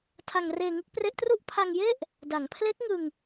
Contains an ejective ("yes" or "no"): no